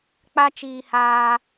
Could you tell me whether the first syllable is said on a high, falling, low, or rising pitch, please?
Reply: high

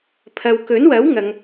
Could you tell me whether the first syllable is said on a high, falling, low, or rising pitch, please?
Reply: low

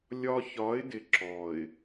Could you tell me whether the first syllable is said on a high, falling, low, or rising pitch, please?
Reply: high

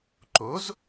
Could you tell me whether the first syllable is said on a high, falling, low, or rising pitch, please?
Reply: rising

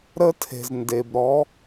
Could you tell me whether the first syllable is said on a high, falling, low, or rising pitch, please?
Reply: high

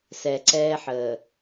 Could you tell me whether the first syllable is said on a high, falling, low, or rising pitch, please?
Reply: low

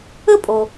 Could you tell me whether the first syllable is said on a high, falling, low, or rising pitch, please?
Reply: high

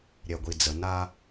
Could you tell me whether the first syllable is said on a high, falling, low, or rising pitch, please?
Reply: low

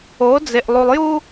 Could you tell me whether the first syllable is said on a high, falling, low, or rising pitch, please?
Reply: rising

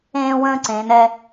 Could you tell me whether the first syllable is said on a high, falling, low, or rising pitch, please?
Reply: high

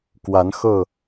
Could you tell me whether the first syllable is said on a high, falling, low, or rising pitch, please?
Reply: rising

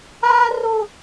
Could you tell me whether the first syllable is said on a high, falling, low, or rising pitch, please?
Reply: high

